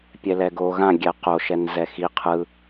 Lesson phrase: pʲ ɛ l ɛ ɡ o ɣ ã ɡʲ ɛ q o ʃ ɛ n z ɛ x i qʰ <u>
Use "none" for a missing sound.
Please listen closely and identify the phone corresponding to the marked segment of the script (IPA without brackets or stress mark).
ɯ